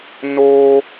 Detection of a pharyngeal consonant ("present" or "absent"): absent